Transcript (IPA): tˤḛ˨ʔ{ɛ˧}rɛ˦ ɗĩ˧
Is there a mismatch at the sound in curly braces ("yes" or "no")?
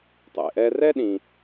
no